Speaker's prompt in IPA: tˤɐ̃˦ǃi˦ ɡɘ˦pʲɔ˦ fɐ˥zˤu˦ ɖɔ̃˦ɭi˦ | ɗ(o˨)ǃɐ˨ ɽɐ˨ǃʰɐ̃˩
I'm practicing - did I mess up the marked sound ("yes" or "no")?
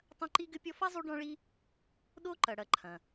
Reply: yes